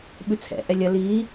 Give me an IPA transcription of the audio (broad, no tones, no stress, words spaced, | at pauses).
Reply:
ɓʉt͡sʰɛ̰ʔɛ lʲɐ li